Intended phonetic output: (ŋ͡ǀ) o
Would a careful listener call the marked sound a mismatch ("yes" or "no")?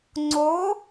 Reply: no